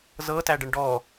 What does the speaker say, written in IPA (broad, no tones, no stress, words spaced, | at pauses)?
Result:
zɤtæɖəɳ ɖɔ